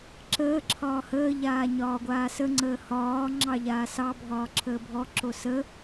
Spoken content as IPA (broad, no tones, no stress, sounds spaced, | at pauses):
ǁ əː ǁʰ ɒː h əː ʎ aː ɲ ɒː ɡʷ aː s ə ŋ͡ǀ əː h ɒː ŋ͡ǁ ɑ ʎ aː s ɑ bʱ ɒː ǁʰ əː bʱ ɔ ǁ o s ə